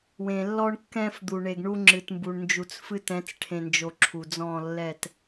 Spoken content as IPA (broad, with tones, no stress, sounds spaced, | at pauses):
w ẽ˨ lː ɔ˦ ɳ kː ɛ̃˦ f d̪ u˨ ɳ e˨ ɡ ɳ u˦ ŋ͡ǁ ɨ˨ t m b u˨ ɳ n d͡ʒ u˨ t͡s f ɨ˦ t ɛ̃˨˦ t͡s ʈʰ ẽ˨ n d͡ʒ o˨ ǁʰ u˨ d͡z ɔ̃˦˨ lː ɛ˦˨ t